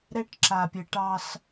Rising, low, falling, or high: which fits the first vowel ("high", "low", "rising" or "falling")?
high